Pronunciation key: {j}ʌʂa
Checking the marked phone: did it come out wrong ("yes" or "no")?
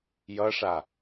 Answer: no